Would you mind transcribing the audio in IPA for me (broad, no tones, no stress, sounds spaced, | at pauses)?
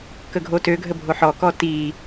k ə ɡʱ o t ø ɡʱ ə bʱ o ħ ɔ k ɔ t i